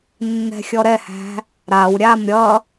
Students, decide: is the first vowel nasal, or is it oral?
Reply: oral